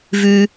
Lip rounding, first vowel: rounded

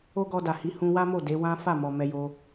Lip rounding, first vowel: rounded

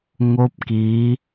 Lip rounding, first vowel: rounded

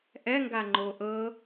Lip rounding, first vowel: unrounded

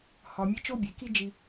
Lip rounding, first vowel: rounded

